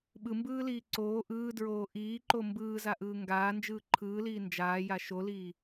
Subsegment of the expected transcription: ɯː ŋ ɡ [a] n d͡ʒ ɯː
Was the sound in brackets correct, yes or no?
no